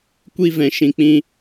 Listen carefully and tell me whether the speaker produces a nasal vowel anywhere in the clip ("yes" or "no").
yes